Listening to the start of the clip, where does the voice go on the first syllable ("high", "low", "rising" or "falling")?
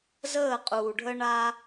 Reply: falling